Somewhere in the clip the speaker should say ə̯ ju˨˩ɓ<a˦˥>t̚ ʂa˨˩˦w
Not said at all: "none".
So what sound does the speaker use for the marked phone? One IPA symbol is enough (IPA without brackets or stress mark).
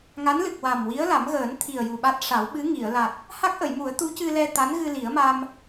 a˦˥